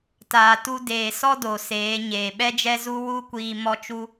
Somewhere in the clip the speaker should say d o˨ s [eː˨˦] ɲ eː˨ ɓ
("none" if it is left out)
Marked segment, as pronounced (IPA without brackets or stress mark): eː˨˦